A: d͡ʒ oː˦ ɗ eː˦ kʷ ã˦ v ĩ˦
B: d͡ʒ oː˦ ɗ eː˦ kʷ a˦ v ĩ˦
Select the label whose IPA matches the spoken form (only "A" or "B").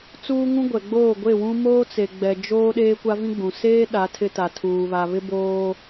B